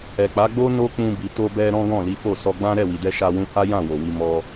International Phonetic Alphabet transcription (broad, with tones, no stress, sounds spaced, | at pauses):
ɛ˨ k͡p a˨˦ ɡ͡b o˦ n o˦ k͡p ũ˧ b i˨ t o˧ b ɛ˧ ɾ ɔ̃˦ ɡ ɔ̃˦˨ l i˨˦ f o˦˨ s ɔ˧ ɡ͡b ã˦ ɾ ɛ˦˨ w i˨ d ɛ˧ ʃ a˧ w ũ˧ h a˦ j ã˦˨ w o˨ w i˧ m ɔ˦